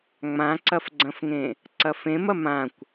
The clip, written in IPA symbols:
ŋ͡mãǀɐfɡ͡ǀɐ̃fŋẽ | ǀɐfẽmɐ mãkʷ

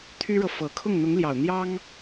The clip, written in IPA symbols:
t̪ʰy˥ɻɤ˨ fɤ˨˩ kʰʊ˥˩ŋn̪ʊ˧˥ŋljɑ˨˩ʊ̯ n̪jɑ˥ŋ

